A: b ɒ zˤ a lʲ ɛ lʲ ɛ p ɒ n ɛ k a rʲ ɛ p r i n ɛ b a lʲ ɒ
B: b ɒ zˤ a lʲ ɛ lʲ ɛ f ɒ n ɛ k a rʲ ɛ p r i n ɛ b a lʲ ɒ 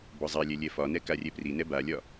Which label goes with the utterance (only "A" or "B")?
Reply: B